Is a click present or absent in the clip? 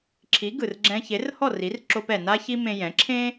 present